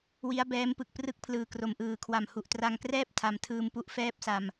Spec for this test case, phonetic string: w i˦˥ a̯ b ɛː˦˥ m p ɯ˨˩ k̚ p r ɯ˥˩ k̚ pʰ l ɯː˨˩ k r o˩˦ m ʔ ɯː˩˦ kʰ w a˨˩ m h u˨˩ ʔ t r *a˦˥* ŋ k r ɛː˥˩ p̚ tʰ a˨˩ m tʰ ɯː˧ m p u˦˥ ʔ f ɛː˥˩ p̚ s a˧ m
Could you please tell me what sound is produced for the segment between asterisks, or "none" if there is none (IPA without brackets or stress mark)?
a˧